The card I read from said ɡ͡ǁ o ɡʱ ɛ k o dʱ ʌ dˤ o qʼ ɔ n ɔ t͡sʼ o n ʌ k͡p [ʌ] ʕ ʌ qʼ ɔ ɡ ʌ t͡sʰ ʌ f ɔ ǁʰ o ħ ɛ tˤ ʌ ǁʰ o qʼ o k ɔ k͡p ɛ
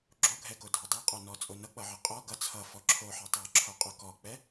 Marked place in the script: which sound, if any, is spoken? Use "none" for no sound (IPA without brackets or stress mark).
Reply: ʌ